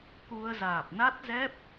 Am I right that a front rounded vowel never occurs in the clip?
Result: yes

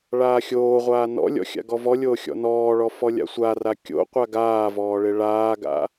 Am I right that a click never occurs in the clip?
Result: yes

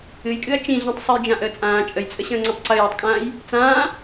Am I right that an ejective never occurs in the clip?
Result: no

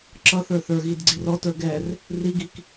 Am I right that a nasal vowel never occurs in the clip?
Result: yes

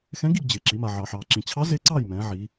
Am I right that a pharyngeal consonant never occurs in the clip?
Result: no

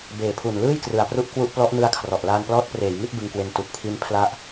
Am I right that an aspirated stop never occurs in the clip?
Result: no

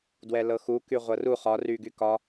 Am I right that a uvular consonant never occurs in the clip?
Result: no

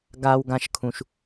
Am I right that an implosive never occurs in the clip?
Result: yes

